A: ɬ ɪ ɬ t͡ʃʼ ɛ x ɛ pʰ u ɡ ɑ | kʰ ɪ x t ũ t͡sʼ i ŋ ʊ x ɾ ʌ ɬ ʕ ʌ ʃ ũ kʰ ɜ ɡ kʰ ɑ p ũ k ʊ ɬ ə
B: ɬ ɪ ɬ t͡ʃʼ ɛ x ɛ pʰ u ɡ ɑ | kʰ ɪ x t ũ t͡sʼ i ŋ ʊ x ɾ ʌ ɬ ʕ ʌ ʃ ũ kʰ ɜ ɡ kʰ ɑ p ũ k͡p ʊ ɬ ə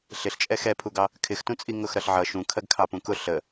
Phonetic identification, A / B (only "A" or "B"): A